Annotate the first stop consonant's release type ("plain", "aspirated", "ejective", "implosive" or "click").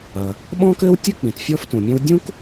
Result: implosive